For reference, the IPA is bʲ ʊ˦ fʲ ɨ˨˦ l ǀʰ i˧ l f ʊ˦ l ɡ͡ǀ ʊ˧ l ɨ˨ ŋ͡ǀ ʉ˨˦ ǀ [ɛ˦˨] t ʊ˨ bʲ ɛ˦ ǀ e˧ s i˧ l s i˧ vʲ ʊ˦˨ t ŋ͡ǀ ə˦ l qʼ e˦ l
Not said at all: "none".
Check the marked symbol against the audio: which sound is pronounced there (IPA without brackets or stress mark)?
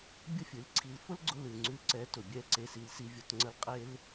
ɛ˨˦